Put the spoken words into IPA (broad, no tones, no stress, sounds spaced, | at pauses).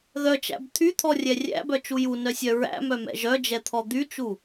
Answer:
ð œ t͡ʃ æ̰ b t̪ʰ y t̪ʰ ɔ rʲ ɛ rʲ æ̰ b œ t͡ʃ u j u n œ sʲ œ ɹ æ̰ m œ m ɛ̰ ʒ œ d͡ʒ ɛ t̪ʰ ɔ d̪ y t͡ʃ u